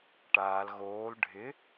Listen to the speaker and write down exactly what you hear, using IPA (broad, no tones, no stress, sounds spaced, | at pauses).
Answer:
ʈ aː l ɣ oː l ɖʱ ɪ